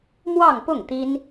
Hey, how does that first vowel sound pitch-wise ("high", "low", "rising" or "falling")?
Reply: falling